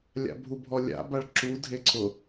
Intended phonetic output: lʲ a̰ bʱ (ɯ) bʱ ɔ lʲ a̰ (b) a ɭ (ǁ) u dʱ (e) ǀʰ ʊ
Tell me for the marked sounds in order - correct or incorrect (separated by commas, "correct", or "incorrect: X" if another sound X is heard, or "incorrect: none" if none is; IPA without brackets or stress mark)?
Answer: incorrect: u, correct, correct, correct